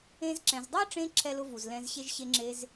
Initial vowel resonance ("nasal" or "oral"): nasal